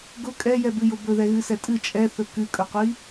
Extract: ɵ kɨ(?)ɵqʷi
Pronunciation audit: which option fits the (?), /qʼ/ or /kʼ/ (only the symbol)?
kʼ